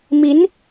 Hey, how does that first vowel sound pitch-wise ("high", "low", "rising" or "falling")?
rising